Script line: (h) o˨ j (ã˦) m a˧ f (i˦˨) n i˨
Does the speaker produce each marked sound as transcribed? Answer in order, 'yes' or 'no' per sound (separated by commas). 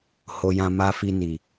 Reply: yes, no, no